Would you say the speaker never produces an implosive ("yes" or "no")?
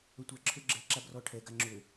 yes